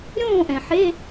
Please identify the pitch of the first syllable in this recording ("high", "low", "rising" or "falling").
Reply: falling